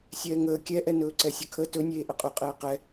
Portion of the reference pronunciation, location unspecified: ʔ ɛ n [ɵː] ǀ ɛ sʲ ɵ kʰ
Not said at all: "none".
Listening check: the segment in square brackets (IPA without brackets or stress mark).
ɵː